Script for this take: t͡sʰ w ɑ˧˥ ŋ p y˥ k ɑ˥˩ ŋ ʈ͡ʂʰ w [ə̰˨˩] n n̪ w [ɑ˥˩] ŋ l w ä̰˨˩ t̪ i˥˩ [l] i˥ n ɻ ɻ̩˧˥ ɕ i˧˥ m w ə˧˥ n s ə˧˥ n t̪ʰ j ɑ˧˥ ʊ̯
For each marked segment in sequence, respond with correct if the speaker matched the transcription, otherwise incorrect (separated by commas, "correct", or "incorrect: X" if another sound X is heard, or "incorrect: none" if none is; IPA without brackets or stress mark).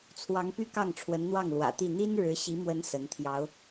incorrect: ə˧˥, correct, incorrect: n̪